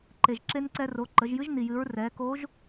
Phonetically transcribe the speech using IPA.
ǃ e˩ ʒ ǁ e˧ n ǀ ɛ˧ r o˩˧ ǃ ə˩˧ ʒ j ɨ˧˥ ʒ n i˩ j ɨ˩˧ ɹ r ɛ˩˧ k o˧˥ ʒ

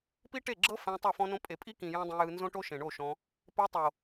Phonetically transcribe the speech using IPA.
p i˦ ʈ e˦˨ ɡ͡ǁ ɤ˦ f ɛ̃˧ tˤ ɤ˦˨ f ɔ̃˦ n õ˦ pʼ e˨ pʼ i˦ k ĩ˨ j ɔ̃˦ dˤ ĩ˧ j ɯ˧ n z õ˦ ʈ o˦ ʃ ẽ˨ ɳ o˦˨ ʃ ɔ̃˧ | p e˧ tˤ o˨

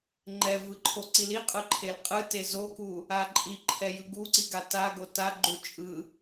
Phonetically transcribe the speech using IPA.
ŋ͡ǃ ɛ v ɯ ǃʰ o ǀ i l i qʼ ɯ ǃʰ e l qʼ ɯ t e z o k u | a ǃʼ i ǃʰ ɛ j ɯ ɡ u ǀ i ɡ a t a ɡ o t a ɡ͡ǃ u t͡ʃʼ ɯ

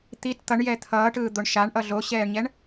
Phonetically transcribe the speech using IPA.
t̪ i t t̪ ʌ ɳ j ɛ t̪ʰ ʌː ʈ ɯː d̪ o ɳ ʃ a ɳ ʔ ʌ ɮ o ɕ ɛː ɳ ɲ ɛ ɳ

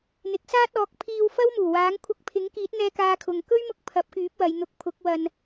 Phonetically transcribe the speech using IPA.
n̪ ɪ˨˥ k̚ s aː˥ t̚ ɔː˨˥ k̚ pʰ iː˧ w f ɐ˥ w m uː˨˩ w aː˨˥ ŋ kʷʰ ɐ˧ k̚ pʰ ɪ˨˥ ŋ k iː˨˥ t̚ n̪ ɛː˧ k aː˧ kʰ ʊ˨ ŋ k ɵ˥ ɥ m ʊ˧ k̚ pʰ ɐ˨˥ p̚ k yː˨˥ p̚ w ɐ˨˧ j n̪ ʊ˧ k̚ pʰ ʊ˨˥ k̚ w ɐ˧ n

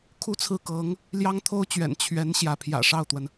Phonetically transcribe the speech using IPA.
kʰ u˥ t͡sʰ ɹ̩˥˩ k ɤ˧˥ ŋ | l j ɑ˥ ŋ t̪ʰ o˥ ʊ̯ t͡ɕ ɥ ɛ̰˨˩ n t͡ɕʰ ɥ ɛ˧˥ n ɕ j ä˧˥ pʰ j ä̰˨˩ ʂ ɑ˥˩ ʊ̯ t̪ w ə˩ n

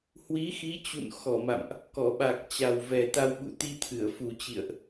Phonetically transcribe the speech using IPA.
h w i˨˦ x i˨˦ t͡ɕ ṵ˧˨ n x ɔ˧˩ m a̰˧˨ m ʔ | k ɔ˧˩ ɓ a˨˩ k̚ t͡ɕ a˨˩ w v ɛ˨˩ t̪ a˧ w ɓ ṵ˧˨ t̪ i˧ t̪ʰ ɨ˧˩ ə̯ f u˨˩ t͡ɕ ḭ˧˨ ə̯ ʔ

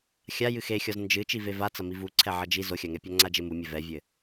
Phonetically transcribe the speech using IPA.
xʲ a j ɨ x e xʲ ɔ z n d͡ʒ ɨ t͡ʃ i v e v a t͡s ɐ m i v u ǀʰ ɛ ʕ ɐ d͡ʒ i z o xʲ a ŋ ɛ pʲ a ŋ͡ǀ a d͡ʒ e m u mʲ ɘ v ɛ vʲ ɘ

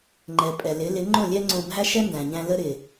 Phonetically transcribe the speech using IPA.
ŋ͡ǃ ɛ˩ pʼ ɛ˩ l ɪ˩˥ l ɪ˩˥ ŋ͡ǃ õ˥˩ lʲ ɛ˥ ŋ͡ǀ õ˧ bʱ æ˥ ʃ ɛ˥ n d æ̃˩ ɲ æ̃˧ l ə˥ ɾ ɪ˩

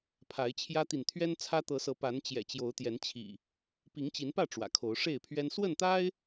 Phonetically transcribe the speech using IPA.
pʰ a˨˦ ɪ̯ t͡ɕʰ j ä˦ t̪ i˨ n t̪ʰ ɥ ɛ˦ n t͡sʰ ä˦ t̪ ɤ˨˦ s ɤ˨˦ p a˨˦ n t͡ɕ j ɛ̰˨˩ t͡ɕ j o˨˦ ʊ̯ t̪ j ɛ˨˦ n t͡ɕʰ ḭ˨˩ | p i˨˦ ŋ t͡ɕ i˨˦ n p ä˥˨ ʈ͡ʂ w ä̰˨˩ kʰ o˨˦ ʊ̯ ʂ e˥˨ ɪ̯ pʰ ɥ ɛ˦ n s w ə˥˨ n t̪ a˦ ɪ̯

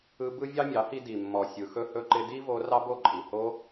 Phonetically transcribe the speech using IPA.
ɯ˧ b ɯ˦ vʲ ɑ˦ mʲ ɑ˨˦ h i˧ d i˨ mː ɔ˨ sʲ ɯ˨ x ɵ˦ h ɵ˧ ǃ ɪ˧ d i˦ v o˧ r ɑ˦ b o˦˨ ǃʼ i˨ h o˧

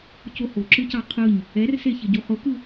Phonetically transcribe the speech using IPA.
c o h o ǁ ɯ c ɑ qʰ ɯ ɲ | ɛ r s e ç ɪ ɟ u χ ʊ k ɯ

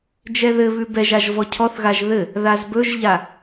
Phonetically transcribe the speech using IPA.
d͡ʒ ɛ ð ɘ β ʉ b ɛ ʒ a ʒ v ɔ cʰ ɔ θ ɣ a ʒ ð ɘ | ð a z b ɵ ʒ ʎ a

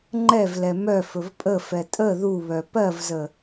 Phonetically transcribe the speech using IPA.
ŋ͡ǃ ɛ v l ɛ m œ f ɵ v pʼ ə f ɛ tʼ ə ð u β œ p ɜ v z ə

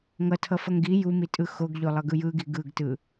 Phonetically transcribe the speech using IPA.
ŋ ʌ tʰ ʌ f ʌ ŋ ɡ i j u m i tʼ ɯ x o ɡ ʎ o lˠ ʌ ɡ ɯ j ɯ ɡ i ɡ ɯ ɡ t ɯ

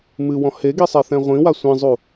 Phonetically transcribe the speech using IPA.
m ɨ w ɔ̃ h e ɡ i sˤ e θ ɛ̃ ʁʷ ĩ w a sʷ ĩ zˤ u

